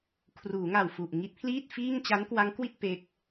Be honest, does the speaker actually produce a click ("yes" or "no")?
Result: no